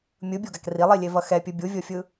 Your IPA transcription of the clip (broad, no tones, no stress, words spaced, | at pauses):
mʲɯbʲoɡak rilˠilʲevʌ xɛpʲɯ bʲuvʲofʲɯ